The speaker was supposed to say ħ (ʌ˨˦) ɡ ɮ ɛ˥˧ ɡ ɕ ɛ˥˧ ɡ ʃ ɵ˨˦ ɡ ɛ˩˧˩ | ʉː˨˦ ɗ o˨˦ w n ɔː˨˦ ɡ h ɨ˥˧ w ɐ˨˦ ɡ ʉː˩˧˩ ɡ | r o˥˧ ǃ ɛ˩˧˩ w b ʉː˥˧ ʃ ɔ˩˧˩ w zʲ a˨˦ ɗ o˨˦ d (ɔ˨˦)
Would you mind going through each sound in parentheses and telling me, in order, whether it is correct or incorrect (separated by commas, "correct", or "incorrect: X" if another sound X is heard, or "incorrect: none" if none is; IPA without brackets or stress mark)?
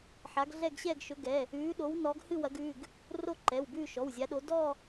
incorrect: a˨˦, incorrect: ɔ˥˧